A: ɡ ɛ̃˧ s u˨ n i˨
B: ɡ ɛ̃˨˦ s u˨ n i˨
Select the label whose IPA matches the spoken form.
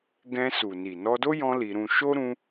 A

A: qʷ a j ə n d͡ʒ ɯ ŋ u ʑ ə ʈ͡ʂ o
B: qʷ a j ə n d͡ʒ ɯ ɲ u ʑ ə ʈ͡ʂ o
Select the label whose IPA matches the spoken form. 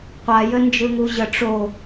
A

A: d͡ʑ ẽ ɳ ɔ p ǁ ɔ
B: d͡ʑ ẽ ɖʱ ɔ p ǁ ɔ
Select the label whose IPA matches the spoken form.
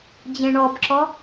A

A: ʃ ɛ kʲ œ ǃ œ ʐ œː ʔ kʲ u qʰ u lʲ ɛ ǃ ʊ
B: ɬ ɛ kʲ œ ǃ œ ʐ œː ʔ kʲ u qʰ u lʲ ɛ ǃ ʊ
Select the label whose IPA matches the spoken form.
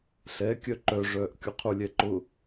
B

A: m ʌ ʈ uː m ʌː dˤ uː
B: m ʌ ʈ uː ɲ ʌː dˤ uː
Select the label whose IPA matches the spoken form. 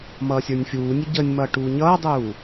B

